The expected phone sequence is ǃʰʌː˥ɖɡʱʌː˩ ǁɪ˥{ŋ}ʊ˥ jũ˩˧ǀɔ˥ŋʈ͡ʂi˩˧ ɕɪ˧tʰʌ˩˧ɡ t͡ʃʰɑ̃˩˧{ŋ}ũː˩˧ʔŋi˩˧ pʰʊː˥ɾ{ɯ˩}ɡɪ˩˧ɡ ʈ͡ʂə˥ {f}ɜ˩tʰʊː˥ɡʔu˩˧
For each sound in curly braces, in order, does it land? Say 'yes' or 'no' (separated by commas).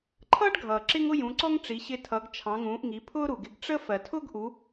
yes, yes, no, yes